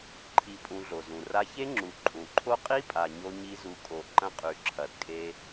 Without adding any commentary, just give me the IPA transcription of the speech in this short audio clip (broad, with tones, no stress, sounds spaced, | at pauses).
ǃʰ i˧ pʼ ũ˧ ɮ o˨ z ũ˨ r a˧ ç e˦ ŋ͡ǁ u˨ ǃʼ ũ˨ ǃʰ o˦ qʼ i˦ pʼ a˨ ɲ o˧ ɲ i˦ z u˧ kʼ o˦˨ ǃ ɐ̃˦ qʼ ʉ˨ ǁʰ ɐ˨ d kʼ e˧